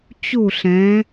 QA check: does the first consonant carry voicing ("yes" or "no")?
no